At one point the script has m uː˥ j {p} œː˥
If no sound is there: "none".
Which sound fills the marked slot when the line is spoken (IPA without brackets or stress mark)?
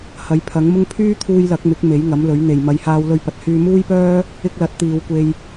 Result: p